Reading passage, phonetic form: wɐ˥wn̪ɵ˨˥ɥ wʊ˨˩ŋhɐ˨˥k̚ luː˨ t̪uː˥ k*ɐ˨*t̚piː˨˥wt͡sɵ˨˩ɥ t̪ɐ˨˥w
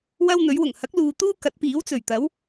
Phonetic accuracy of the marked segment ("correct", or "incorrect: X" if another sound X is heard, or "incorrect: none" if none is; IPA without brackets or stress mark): incorrect: ɐ˨˥